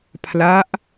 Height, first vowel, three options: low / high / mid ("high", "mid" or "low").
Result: low